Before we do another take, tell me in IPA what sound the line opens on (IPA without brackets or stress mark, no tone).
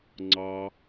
ŋ͡ǀ